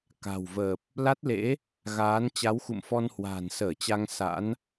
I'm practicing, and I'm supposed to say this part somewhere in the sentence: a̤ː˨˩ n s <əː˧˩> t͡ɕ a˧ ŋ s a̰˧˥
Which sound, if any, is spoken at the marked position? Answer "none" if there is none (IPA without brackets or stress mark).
əː˧˩